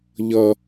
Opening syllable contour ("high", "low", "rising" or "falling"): high